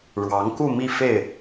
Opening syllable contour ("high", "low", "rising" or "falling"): rising